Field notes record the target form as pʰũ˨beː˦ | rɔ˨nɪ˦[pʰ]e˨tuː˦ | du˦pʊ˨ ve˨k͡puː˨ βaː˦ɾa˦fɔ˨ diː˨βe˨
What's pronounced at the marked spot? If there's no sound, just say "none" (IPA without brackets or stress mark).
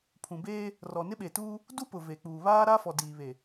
ɓ